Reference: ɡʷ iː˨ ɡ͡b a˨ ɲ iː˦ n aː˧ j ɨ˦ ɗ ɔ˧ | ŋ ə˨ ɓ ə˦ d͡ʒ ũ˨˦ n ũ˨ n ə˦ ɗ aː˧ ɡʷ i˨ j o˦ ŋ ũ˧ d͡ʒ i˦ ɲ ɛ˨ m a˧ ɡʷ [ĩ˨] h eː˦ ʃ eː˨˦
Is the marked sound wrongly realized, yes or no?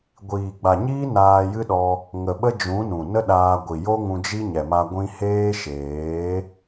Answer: yes